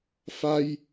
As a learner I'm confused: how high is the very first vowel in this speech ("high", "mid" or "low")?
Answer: low